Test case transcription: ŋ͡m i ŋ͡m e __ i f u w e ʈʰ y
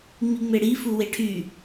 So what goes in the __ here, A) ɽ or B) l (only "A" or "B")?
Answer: A